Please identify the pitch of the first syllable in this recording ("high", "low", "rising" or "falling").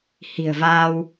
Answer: low